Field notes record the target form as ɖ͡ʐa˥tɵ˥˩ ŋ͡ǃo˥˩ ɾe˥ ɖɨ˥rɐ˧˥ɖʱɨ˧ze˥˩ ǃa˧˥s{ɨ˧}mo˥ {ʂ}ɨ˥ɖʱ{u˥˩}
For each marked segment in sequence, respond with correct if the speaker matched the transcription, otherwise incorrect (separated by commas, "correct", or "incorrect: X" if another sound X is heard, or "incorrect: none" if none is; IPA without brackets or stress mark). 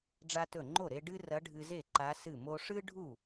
incorrect: ɨ˥˩, correct, correct